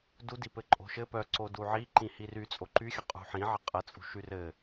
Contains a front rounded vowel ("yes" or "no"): yes